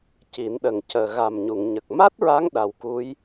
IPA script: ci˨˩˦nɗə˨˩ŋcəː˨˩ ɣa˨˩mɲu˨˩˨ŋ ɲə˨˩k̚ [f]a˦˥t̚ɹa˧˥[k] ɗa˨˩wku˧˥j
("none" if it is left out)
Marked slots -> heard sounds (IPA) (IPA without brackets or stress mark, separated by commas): m, ŋ